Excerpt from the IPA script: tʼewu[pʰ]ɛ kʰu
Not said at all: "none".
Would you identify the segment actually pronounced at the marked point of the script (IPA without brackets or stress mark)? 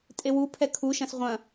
pʰ